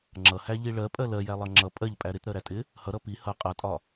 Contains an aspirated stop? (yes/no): no